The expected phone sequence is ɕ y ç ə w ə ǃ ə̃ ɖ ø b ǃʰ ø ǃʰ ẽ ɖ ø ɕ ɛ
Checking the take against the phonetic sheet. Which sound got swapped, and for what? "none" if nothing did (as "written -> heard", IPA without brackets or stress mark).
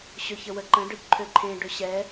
y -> ø